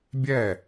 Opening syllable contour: falling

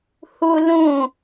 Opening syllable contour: high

